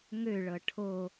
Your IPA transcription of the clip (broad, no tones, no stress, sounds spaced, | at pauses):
ŋ ø ɭ ɤ ʈʰ o